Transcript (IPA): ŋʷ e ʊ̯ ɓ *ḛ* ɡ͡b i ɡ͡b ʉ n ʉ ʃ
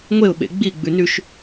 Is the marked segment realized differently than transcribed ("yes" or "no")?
no